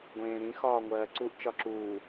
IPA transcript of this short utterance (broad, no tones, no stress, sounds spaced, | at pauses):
ɡʷ ẽː ɾ ĩ x ɒː ŋʷ ɜː ǀ u ʔ t͡ʃ ɒ ǁ uː